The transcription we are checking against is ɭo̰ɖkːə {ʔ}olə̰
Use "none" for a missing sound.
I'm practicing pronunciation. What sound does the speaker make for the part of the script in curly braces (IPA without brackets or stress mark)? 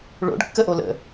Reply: ʔ